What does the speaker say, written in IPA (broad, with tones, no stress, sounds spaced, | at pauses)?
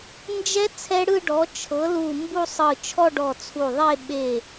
n d͡ʒ ɛ˦˥ t͡sʰ ɛ˦˥ ɽ ɯ˥˧ ɖ ɔ˩˥ t͡ʃʰ ɤ˩˥ l u˧˩ m b u˥˧ sˤ ɯ˧˩ t͡ʃʰ ɔ˥˧ ɖ ɔ˧˩ t͡sʰ u˧˩ ðˤ e˥˧ ɓ e˧˩